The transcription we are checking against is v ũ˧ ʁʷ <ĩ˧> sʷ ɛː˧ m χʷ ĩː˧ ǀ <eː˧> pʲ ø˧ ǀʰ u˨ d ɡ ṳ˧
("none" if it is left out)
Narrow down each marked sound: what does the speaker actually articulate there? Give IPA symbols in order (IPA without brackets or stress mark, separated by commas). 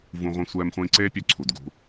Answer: ĩ˧, eː˦